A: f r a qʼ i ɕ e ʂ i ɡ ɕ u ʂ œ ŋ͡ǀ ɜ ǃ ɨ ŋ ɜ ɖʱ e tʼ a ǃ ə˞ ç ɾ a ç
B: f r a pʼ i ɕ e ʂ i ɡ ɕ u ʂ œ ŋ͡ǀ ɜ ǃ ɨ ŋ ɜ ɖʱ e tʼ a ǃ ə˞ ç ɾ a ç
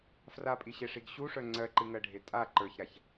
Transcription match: B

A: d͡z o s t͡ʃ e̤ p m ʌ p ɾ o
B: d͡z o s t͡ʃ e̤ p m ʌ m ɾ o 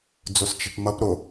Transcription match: A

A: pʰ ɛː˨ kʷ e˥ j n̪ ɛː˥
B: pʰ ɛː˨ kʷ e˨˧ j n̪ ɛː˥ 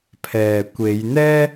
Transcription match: B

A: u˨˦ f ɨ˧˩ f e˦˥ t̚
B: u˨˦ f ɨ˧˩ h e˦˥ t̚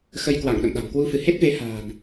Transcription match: B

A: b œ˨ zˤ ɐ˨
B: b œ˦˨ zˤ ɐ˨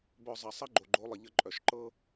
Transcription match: A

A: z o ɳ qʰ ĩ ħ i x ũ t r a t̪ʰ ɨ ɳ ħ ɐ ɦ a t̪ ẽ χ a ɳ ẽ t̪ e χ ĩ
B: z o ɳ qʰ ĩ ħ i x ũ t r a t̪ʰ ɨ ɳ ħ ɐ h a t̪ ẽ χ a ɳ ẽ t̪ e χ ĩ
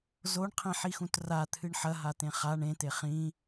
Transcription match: A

